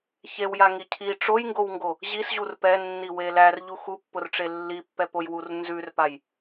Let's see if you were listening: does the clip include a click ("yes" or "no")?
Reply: no